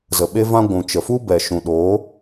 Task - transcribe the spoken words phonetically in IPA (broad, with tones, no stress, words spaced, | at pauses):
zə˨ ɓe˧vã˧ ɡʷũ˨ t͡ʃə˨fu˦ bɛ˨ ʃũ˨ɗoː˨˦